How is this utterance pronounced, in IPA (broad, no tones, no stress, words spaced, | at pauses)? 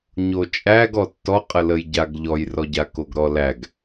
ɲot͡ʃʼæɡ ɔtːɔ qʼələjɟaɡ ʎɔjrɔɟa koɡɾɔlæɡ